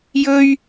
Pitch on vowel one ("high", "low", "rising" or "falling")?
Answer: high